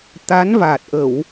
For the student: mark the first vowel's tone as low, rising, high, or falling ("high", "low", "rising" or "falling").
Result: rising